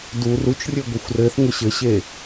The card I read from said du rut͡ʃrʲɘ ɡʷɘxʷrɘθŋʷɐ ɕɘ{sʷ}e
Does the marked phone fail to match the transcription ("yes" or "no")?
yes